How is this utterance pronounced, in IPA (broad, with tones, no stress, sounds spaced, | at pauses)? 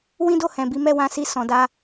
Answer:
w ĩ˦ d o˦˨ h ɛ̃˨ b i˨˦ m ɛ˦˨ w ã˨˦ s i˧ s ɔ̃˨ d a˧